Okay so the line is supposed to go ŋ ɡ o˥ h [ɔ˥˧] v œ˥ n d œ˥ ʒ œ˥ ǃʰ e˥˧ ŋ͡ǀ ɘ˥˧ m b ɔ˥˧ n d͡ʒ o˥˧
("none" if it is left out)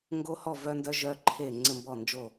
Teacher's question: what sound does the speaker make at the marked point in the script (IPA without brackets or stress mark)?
ɔ˥˧